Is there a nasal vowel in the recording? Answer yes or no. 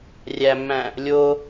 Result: yes